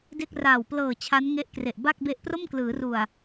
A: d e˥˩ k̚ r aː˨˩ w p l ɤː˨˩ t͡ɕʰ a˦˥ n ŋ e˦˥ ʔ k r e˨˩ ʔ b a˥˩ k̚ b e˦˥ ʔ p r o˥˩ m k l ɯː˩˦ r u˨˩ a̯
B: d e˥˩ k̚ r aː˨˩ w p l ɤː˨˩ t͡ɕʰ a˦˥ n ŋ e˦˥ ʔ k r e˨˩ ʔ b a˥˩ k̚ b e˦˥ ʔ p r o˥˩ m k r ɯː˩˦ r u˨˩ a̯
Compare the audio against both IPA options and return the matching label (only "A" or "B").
A